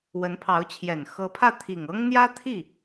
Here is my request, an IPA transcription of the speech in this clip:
w ə˧˥ n pʰ ɑ˧˥ ʊ̯ t͡ɕʰ j ɛ˨˩ n x ɤ˧˥ pʰ ä˥˩ t̪ʰ i˨˩ ŋ ɤ˥ ŋ n̪ j ä˥ t̪ʰ i˥˩

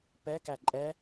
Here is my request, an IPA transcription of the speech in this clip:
p ɛ k æ ǃʼ ɛ

